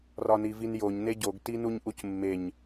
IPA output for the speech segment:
r ɒ n i v i n j o ɲ n e ɟ o ɡ t i n u ɲ ʔ u c mː e ɲ

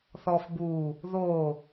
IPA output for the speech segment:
θ ɔ f b u | ð o

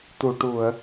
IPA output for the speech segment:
t̪ u˨˩˨ ʈ u˨˩˨ ə̯

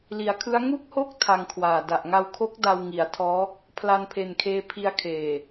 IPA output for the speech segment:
l i˩˦ a̯ kʰ ɯ˦˥ a̯ ŋ u˥˩ k̚ h o˥˩ k̚ tʰ a˧ ŋ kʰ w aː˨˩ d a˨˩ ʔ ŋ a˧ w kʰ o˦˥ k̚ d a˧ w ŋ i˩˦ a̯ tʰ ɔː˦˥ | pʰ l a˧ n pʰ e˨˩ n kʰ eː˧ pʰ i˧ a̯ kʰ eː˨˩

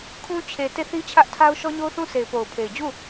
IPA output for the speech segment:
kʰ ũ˦ t͡ɕʰ e˨ t e˦˨ θ i˦ t͡ɕʰ ä˦ ʔ tʰ a˦ ʊ̯ ʃ ɔ˦ ɲ o˦ ʊ̯ θ ũ˦ sʰ e˨ ɪ̯ p o˨ ʊ̯ pʰ e˨ ɪ̯ d͡ʑ u˦˨

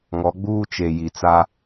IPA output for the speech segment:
ŋ ɔ˨˦ ɡ͡b uː˦ t͡ʃ e˨ j i˨ t͡s a˦

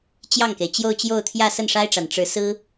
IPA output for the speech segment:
t͡ɕ j ɑ˥˩ ŋ k e˩ ɪ̯ t͡ɕ j o˥˧ ʊ̯ t͡ɕ j o˥˧ ʊ̯ t̪ʰ j ä˥˧ s ə˥˩ n ʂ a˥ ɪ̯ ʈ͡ʂ a˨˩ n ʈ͡ʂ ɻ̩˧˥ s ɹ̩˥

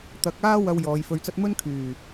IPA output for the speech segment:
t̪ ɐ˨˥ k̚ aː˥ w ɐ˧ w j ɔː˨˧ j f ɵ˧ ɥ t͡s ɐ˥ t̚ m ɵ˥ n kʰ yː˨˩

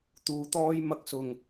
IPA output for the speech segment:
t̪ uː˨ t̪ ɔː˥ j m ɐ˧ k̚ s ʊ˨˩ ŋ

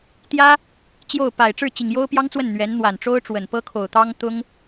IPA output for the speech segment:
t̪ j ä˥ | t͡ɕ j o˥˩ ʊ̯ p a˨˩ ɪ̯ ʈ͡ʂ ɻ̩˥˩ t͡ɕ i˨˩ ŋ j o˥ ʊ̯ p j ɑ˥ ŋ t͡s w ə˥˩ n n̪ ɥ ɛ˧˥ n n̪ w a˨˩ n ʈ͡ʂ o˥ ʊ̯ ʈ͡ʂ w ə˨˩ n p ɤ˥ kʰ o˨˩ ʊ̯ t̪ ɑ˥ ŋ t̪ ʊ˥ ŋ

